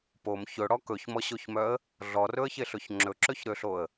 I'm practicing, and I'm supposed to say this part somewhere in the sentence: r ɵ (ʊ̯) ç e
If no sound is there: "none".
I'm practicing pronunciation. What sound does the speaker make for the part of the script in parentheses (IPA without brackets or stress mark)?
ə̯